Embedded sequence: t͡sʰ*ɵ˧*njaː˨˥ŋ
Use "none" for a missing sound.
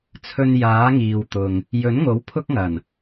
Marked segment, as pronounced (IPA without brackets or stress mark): ɵ˧